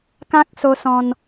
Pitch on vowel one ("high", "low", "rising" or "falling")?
high